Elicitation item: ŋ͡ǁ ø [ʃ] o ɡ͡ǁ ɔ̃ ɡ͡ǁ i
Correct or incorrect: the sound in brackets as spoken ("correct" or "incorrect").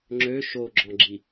correct